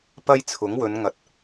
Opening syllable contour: high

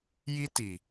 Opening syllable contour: high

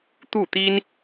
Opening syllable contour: falling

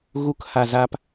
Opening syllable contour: low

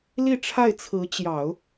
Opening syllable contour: falling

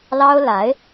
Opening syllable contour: high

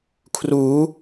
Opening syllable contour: rising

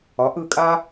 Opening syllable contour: rising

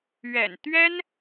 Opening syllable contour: low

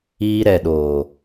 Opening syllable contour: high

